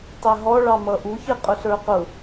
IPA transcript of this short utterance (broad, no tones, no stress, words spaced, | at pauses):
tˤɛɦɔɭɑmʌ ʔuçɪ qʼʊɬə˞qʊ